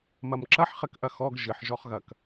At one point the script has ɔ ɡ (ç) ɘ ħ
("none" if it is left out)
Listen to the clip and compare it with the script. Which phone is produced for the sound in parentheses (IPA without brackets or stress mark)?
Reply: ʒ